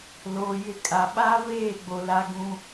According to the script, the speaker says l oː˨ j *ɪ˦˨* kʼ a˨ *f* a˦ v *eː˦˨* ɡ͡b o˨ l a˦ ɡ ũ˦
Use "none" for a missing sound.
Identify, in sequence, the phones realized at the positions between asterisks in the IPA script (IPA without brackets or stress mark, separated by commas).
ɪ˦˨, ɓ, eː˦˨